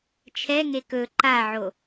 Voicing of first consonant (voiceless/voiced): voiceless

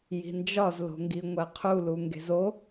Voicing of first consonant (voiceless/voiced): voiced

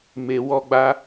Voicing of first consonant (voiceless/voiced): voiced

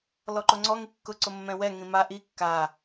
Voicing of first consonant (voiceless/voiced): voiced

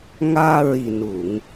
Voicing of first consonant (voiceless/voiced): voiced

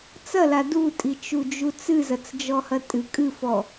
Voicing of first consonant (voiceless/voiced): voiceless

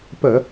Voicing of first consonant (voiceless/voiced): voiceless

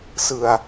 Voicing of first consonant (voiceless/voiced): voiceless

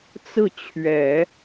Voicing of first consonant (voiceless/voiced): voiceless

